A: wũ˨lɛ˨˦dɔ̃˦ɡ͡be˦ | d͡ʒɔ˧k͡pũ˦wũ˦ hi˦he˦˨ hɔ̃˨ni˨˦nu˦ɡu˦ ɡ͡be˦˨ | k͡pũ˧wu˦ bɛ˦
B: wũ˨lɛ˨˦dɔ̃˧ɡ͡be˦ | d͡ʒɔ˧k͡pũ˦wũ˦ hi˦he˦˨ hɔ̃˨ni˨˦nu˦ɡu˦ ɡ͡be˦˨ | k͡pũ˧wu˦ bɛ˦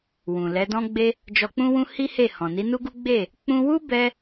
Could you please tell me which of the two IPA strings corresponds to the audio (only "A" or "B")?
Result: A